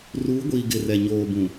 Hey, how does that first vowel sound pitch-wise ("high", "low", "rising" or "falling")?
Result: rising